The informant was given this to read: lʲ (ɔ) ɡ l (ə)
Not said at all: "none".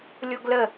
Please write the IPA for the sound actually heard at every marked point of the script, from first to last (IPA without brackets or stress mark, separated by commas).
o, ə